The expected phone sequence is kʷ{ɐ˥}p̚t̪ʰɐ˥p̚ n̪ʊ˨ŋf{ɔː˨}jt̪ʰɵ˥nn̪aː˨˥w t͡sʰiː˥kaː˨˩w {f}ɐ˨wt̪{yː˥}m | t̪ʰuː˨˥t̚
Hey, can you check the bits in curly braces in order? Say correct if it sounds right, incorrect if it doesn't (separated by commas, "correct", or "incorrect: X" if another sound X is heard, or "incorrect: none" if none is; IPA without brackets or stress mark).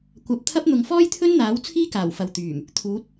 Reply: incorrect: ɐ˨˥, incorrect: ɔː˥, correct, incorrect: yː˨˩